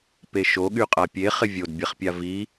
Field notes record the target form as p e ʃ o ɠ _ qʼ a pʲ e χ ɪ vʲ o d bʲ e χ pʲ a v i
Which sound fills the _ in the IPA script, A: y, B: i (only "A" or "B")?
A